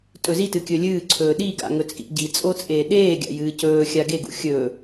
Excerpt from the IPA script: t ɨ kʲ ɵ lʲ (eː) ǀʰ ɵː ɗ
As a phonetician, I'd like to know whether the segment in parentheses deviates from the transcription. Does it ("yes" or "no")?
yes